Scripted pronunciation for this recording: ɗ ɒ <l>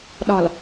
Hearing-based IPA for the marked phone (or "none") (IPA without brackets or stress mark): l